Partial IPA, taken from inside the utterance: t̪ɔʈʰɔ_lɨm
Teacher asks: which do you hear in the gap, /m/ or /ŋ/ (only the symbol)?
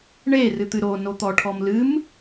m